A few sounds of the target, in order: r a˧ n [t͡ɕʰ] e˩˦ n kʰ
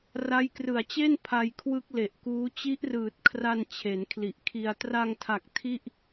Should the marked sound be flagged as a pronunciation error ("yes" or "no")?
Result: no